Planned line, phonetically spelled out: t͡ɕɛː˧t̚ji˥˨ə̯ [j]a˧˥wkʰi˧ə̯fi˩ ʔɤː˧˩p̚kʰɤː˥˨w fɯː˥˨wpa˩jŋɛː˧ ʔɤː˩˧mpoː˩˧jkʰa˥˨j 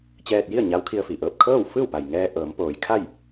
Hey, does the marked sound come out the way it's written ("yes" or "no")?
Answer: no